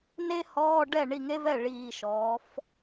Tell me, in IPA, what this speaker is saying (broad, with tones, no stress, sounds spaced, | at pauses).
n e˥ h ɔː˧˥˧ ɖ ɛ˥˩ ɳ i˥˩ ŋ e˥ v ɛ˥˩ ɭ iː˨˩ ʃ ɔː˩˧ f